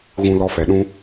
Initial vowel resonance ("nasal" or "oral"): nasal